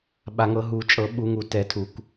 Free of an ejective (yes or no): no